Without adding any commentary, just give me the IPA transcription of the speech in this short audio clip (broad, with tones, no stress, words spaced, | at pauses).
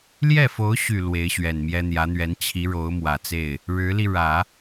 ljɛ˥˩fo˧˥ʊ̯ɕy˨˩ lwe˧˥ɪ̯ɕɥɛ˨˩nmjɛ˥ n̪jä˧˥n̪ɥɛ˧˥n t͡ɕʰi˧˥ ɻo˧˥ʊ̯mwä˨˩t͡se˥˩ɪ̯ | ɻɻ̩˧˥li˧ ɻä˨˩˦